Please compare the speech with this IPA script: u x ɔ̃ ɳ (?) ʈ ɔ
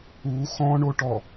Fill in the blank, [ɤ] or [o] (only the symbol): o